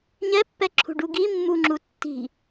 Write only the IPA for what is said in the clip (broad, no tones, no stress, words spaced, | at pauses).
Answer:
ɲɛ pːɛǁʰṳɖuɡi mːuŋ͡ǁutːi̤